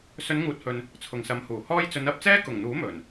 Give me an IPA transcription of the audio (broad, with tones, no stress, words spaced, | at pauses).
sɵ˨˧nŋuː˨t̚hɵ˨n | t͡sʰʊ˨ŋsɐ˨˧mhuː˨˩hɔː˥j t͡sɵ˨˧nɐ˨˥p̚t͡sɛː˥ kʊ˨˩ŋn̪uː˨˥ mɵ˨˩n